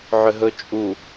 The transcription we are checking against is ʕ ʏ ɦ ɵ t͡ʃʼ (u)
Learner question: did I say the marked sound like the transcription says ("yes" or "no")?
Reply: yes